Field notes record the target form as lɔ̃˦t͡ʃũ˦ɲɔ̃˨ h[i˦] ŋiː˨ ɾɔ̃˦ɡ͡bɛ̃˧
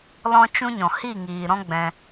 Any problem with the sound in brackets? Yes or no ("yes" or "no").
yes